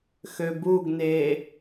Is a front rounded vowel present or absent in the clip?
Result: present